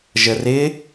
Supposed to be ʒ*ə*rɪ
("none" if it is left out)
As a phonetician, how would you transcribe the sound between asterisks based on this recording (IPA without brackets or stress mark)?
ə